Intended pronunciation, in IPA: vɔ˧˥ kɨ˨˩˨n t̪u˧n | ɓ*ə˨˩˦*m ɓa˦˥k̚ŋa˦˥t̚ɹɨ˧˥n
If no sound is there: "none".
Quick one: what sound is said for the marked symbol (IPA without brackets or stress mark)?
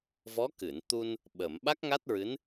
ə˨˩˨